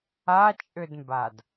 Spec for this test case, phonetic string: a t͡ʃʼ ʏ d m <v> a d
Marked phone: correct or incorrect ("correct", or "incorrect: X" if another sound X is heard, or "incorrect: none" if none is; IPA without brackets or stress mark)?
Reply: incorrect: b